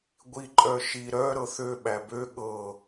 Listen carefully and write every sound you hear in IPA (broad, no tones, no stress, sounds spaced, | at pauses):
ɡʷ i ǃʼ œ ʃ i ɾ œ ɾ ɤ θ ø ɓ æ b ø ɠ ɤ